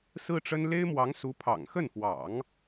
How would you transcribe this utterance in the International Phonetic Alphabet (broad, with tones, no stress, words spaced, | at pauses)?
sɹ̩˥ʈ͡ʂə˥n le˥ɪ̯mwɑ˧˥ŋsu˧˥pʰɑ̰˨˩ŋ xə˥˩nfwɑ̰˨˩˦ŋ